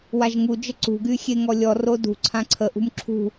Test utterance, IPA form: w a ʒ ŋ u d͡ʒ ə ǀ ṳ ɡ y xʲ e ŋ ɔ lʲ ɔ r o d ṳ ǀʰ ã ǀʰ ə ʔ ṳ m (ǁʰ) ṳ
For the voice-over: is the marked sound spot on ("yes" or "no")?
yes